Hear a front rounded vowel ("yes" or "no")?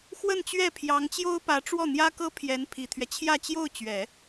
no